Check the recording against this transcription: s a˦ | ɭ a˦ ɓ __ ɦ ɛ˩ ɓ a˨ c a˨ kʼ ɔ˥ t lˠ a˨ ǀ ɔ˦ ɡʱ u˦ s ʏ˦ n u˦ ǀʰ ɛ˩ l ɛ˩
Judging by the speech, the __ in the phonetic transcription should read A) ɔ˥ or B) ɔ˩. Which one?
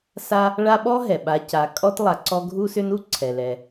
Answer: A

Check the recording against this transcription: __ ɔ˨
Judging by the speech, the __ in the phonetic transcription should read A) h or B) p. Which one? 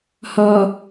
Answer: A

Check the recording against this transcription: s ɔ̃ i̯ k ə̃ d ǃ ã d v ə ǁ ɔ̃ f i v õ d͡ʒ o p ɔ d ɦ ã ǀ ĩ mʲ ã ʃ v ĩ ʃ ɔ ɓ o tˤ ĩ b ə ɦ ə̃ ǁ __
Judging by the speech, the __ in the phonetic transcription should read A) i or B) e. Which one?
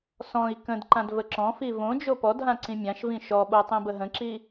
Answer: A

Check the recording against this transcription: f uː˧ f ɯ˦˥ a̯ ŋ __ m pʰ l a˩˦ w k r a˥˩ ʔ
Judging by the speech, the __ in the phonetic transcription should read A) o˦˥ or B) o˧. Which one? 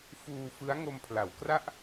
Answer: B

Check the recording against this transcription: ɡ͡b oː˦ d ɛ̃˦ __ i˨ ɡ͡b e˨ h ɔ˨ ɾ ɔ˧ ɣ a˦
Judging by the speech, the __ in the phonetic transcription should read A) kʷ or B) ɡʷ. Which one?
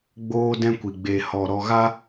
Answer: A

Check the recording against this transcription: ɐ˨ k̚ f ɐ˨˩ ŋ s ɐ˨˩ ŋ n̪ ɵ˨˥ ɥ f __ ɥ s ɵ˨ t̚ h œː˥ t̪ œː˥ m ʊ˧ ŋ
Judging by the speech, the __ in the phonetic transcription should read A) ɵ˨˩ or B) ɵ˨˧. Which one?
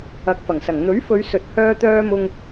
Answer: B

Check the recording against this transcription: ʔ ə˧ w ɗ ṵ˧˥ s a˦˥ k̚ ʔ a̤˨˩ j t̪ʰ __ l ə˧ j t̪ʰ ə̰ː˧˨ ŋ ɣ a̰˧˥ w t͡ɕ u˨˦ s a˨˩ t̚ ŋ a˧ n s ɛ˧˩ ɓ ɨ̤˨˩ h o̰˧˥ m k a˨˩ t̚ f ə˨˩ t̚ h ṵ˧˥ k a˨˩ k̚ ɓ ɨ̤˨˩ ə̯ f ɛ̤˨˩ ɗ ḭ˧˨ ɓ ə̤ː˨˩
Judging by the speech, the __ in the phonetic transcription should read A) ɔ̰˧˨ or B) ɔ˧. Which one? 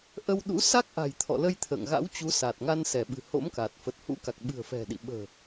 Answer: A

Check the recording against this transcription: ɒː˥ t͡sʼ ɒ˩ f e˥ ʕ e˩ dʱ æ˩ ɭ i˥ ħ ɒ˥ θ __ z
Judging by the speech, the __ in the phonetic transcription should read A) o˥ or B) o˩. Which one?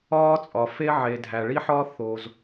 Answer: B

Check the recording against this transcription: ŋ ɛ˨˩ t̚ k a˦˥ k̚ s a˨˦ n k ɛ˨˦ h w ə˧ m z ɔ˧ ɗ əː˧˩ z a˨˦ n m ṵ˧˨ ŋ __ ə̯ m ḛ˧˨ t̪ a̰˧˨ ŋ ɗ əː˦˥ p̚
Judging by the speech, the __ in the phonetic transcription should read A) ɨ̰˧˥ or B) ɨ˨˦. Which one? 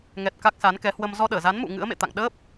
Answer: A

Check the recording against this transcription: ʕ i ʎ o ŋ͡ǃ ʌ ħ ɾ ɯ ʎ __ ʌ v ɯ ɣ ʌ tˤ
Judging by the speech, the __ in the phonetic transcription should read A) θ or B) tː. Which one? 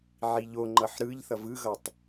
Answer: A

